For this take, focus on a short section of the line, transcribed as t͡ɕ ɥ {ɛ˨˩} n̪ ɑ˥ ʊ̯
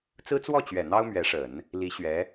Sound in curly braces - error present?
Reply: no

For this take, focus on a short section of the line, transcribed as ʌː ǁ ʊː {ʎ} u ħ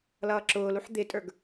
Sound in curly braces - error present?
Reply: yes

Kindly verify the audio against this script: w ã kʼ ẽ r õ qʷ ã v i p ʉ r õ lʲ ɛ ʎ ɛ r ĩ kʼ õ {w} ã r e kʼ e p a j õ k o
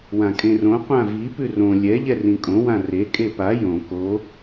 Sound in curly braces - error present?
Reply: no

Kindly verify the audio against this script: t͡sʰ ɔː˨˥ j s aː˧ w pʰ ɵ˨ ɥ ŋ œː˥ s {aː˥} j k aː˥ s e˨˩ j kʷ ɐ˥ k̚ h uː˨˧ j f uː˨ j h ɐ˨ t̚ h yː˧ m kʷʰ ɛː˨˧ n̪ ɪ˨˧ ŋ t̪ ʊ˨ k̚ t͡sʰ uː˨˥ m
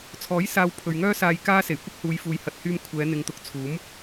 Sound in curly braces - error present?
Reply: yes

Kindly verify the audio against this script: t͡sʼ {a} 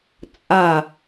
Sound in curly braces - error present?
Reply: no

